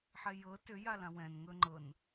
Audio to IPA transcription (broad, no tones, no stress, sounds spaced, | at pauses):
ħ ɛ j ɤ t ʏ j a l ã w ɛ̃ n ŋ ɵ ŋ͡ǃ ɤ n